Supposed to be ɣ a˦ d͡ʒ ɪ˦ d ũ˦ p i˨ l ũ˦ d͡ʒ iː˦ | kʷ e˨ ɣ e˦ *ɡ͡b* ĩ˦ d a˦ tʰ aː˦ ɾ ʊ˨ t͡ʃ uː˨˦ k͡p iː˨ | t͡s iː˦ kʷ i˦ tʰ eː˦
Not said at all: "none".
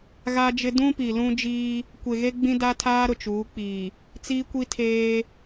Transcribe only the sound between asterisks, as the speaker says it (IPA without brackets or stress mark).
ɡ͡b